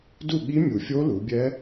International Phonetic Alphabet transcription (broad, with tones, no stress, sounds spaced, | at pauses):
d u˥˨ ɠ i˦˥ mʲ u˨˩ fʲ o˦˥ l u˩˧ bʲ ɛ˦˥